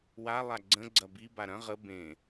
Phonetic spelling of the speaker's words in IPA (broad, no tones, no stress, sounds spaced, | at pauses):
w a lˠ a ɡ͡ǀ ə̃ ɡ͡ǀ ɐ b i b a ɾ ɐ̃ ʁ ə b ẽ